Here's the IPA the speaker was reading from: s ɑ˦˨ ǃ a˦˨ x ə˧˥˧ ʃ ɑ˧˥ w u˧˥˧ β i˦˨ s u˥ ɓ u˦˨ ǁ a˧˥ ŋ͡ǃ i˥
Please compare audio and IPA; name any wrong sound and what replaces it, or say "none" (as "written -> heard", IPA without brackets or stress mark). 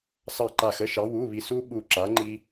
none